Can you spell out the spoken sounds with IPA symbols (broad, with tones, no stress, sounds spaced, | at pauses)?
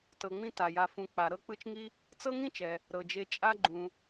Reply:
t ɤ˨ ŋ͡m ĩ˦ t a˩ j a˨ f ũ˨ k͡p a˨ ɾ ɤ˥ k͡p ɯ˦ t͡ʃ ŋ i˥ | t͡s ɤ˥ ŋ ĩ˥ t͡ʃ ɛ˨ | ɾ ɤ˨ d͡ʒ e˦ t͡ʃʼ a˥ ɡ͡ǃ ũ˨